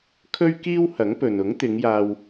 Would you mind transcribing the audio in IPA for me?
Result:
kʰ ɵ˥ ɥ k iː˥ w h ɐ˨˥ ŋ p ɵ˨ n ʊ˨˥ ŋ t̪ ɪ˨˧ ŋ j aː˧ w

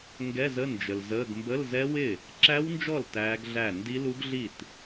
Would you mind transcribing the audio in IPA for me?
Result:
ŋ ɡ ɛ˧˥˧ z ə˧˥˧ n d͡ʒ ə˨ l z əː˧˥˧ ɡ m b ə˧˥˧ l z ɛ˦˥ w ɪ˥˩ | ǁ æ˦˥ w n d͡ʒ ɔ˥˩ l t æː˦˥ ɡ ɮ æ˥˩ n d i˦˥ l u˦˥ ɡ ɮ i˥˩ t

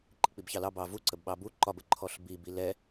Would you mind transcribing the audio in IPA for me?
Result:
ǃ i k͡p i b ç ɑ l ɑ b ɑ v u ǀ ə b ɓ ɑ b u ǃ ɒ b ə ǃʰ ɔ ɬ b i b i l ɛ

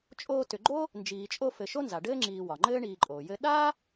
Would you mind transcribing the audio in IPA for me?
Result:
t͡ʃʼ oː˦ t ʏ˨ ɡ͡ǃ o˥ | n d͡ʒ iː˨ t͡ʃʼ o˦ f ɘ˨ ʃ o˥ n z a˩ ɖ ɘː˦ ŋ͡ǁ iː˨ w ɒ˩ ŋ͡ǃ ɘː˥ ɳ iː˨ ǃʼ oː˩ j ɘ˦ ɗ a˥

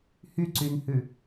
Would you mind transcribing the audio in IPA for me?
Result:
h y ǀ y n h ʉ

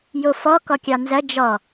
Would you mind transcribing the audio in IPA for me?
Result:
j o f ɔ k ɔ kʲ ɑ n z ɐ d͡ʒ ɔ

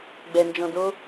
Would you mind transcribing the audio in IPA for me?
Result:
ɡ͡b ɛ n d͡ʒ ɔ̃ d o

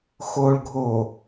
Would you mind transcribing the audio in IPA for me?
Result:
x o ɭ ɡʱ o

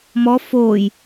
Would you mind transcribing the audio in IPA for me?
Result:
m ɔ f oː j

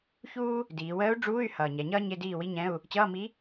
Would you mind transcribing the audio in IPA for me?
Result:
ç uː˥ | d iː˩˧ w əː˧˥ u̯ ɖ͡ʐ uː˧˥˧ y̯ h ʌː˨˩ ɲ ɛ˩˧ ɲ ʌː˥ ɲ ɪ˧˥˧ d iː˥˩ w i˥ ɲ ɛ̃˧˥˧ u̯ | t͡ɕ ʌː˧˥˧ m i˧˥

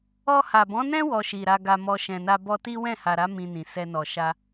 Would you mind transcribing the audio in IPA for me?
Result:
ɔ˧ h a˨ b ɔ̃˨˦ n ɛ̃˦ w ɔ˧ ʃ i˨ ɾ a˧ ɡ a˧ m ɔ˧ ʃ ɛ̃˨ n a˧ b ɔ˧ t i˦ w ɛ̃˦˨ h a˨ ɾ a˨˦ m ĩ˦ n ĩ˧ s ɛ˧ n ɔ˨ ʃ a˧

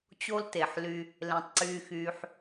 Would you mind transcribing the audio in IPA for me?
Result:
t͡ɕ o˦ l t e˨ ħ l y˧ | l ẽ˨ tˤ ǀ yː˧ x yː˧ ħ

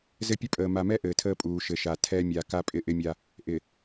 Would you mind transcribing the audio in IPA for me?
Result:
z ɘ˦ pʲ ə˦ pʼ əː˨ m a˨ m ɛ˦ ʔ ɘː˨ tʰ əː˦ pʼ uː˨ ʃ ɘ˨ ʃ a˨ tʰ ɛ˦ mʲ a˨ k a˦ pʼ ɪ˦ ʔ ɪ˦ mʲ a˦ | ʔ ɪ˨

